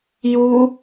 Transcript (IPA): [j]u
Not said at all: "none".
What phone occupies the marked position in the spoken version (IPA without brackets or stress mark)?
j